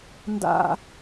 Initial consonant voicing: voiced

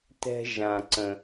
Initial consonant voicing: voiceless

